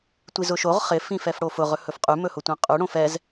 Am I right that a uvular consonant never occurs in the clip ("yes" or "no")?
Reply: no